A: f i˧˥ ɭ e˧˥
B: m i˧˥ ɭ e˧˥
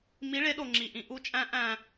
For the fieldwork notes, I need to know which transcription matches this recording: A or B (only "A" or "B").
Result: B